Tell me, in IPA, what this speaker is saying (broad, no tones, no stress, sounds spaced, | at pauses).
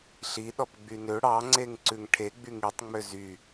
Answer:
ɬ i ɗ ɔ p ɡ͡b y n ø ɽ ɑ ŋ͡ǀ e ŋ ǀ ʉ ŋ ʈʰ e ɡ͡b y ŋ i tˤ ŋ͡m ø z y